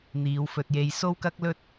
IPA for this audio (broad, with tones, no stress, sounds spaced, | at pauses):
n̪ iː˨˧ w f ɵ˧ t̚ j e˧ j s o˥ w k ɐ˥ k̚ l ɵ˥ t̚